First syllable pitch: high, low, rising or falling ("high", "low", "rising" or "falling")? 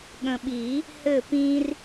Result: low